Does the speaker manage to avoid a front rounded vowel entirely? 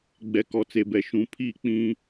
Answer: yes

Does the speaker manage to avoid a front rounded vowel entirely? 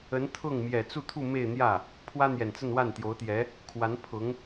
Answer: yes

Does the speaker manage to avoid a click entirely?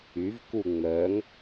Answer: yes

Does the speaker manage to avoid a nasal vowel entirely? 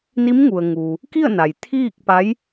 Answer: yes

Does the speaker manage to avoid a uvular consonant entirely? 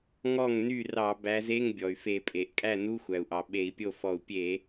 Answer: yes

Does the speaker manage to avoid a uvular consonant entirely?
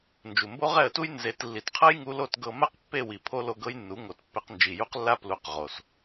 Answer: no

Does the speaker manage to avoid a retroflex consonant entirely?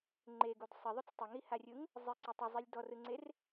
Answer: yes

